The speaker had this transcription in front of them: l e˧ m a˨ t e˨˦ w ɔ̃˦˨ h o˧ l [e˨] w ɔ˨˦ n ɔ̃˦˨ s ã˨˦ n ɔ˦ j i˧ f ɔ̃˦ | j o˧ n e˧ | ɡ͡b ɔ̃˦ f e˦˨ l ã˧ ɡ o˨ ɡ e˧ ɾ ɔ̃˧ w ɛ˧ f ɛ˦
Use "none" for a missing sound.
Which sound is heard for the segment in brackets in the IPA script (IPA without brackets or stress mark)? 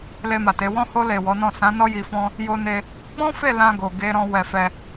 e˨